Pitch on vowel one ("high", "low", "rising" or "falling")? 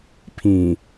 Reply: low